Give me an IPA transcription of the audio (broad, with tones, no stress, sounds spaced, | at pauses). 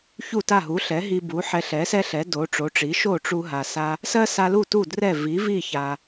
ç u˥˩ t a˥˩ ɦ u˩˥ ɬ ɛ˩˥ ɦ i˧ b u˩˥ ħ ɛ˧ ɬ ɛ˩˥ s ɛ˥ ɬ ɛ˩˥ d o˩˥ ʈ͡ʂ o˩˥ ʈ͡ʂ i˩˥ ʃ o˥˩ ʈ͡ʂ u˧ ɦ a˩ s a˧ | s ɜ˥ s a˧ l u˥˩ t u˥˩ d r ɛ˥˩ v i˩˥ v i˥˩ ç a˩